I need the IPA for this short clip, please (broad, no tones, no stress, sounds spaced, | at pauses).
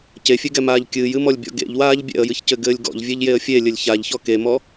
c e fʲ e ɡ ɛ m aː ʎ kʲ ɨː j ɨ m ɔ lʲ bʲ ɔ̰ ɡ ḛ ʎ w aː ʎ bʲ ɛ̰ ə̯ j ɨ ç c ɘ ɡ ɘː lʲ ɡ ɔ̰ ʎ vʲ e ʎ j e ə̯ fʲ e lʲ ɘ lʲ ç a ʎ ç ɔ k e m ɔ